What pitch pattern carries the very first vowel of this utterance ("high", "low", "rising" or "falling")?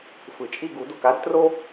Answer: low